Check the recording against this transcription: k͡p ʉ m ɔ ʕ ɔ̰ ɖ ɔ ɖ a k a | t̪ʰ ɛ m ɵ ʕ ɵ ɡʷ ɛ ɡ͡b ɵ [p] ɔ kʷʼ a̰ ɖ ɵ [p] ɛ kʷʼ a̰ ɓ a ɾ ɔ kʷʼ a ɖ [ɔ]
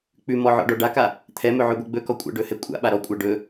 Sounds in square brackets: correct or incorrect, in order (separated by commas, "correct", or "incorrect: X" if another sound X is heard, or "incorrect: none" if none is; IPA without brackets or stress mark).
incorrect: k, incorrect: h, incorrect: ɵ